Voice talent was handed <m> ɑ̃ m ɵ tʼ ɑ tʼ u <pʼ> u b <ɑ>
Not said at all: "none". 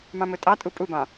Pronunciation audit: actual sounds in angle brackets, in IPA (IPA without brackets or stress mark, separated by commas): m, pʼ, ɑ̃